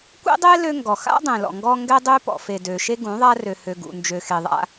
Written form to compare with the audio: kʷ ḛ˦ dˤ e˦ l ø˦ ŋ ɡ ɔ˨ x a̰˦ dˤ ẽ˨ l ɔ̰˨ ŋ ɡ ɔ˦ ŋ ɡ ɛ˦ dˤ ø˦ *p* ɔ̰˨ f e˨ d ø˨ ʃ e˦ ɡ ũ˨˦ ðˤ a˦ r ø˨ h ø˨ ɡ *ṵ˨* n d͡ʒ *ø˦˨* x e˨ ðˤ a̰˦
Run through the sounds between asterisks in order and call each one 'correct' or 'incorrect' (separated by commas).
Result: correct, correct, incorrect